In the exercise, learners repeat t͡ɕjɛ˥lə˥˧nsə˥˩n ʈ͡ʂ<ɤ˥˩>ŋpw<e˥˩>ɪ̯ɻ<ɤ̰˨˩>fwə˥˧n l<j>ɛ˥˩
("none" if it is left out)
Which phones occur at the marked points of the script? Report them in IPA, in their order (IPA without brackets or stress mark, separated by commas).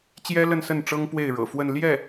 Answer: ɤ˥, e˥˩, ɤ̰˨˩, j